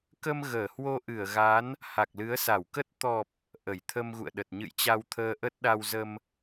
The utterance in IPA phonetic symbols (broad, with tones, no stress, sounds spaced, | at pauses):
k ə˧ m ɣ əː˧˩ h w o˧ ʔ ɨ˧˩ ə̯ ɣ a˨˦ n | h a˨˩ k̚ l ɨ˨˦ ə̯ s a˧˩ w k ə˦˥ t̚ t̪ ɔ˨˩ p̚ | ʔ ə˧˩ j t̪ʰ ə˧ m ɣ ṵ˧˨ ə̯ ɗ ə˨˩ t̚ ɲ ɨ̰˧˨ j t͡ɕ a˧ w t̪ʰ əː˧ ʔ ə˦˥ t̚ ɗ a˧ w z ə˧ m